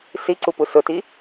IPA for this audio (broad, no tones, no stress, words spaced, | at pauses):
siǀupu sʊti